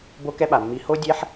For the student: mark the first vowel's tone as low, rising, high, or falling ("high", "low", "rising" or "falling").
high